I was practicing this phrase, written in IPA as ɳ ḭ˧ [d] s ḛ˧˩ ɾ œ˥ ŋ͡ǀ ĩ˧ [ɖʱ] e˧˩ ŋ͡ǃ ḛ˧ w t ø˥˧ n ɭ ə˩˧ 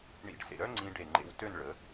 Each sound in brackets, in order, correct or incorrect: incorrect, incorrect

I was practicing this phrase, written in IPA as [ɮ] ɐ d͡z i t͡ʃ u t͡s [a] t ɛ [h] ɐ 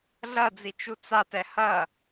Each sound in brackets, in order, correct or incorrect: correct, correct, correct

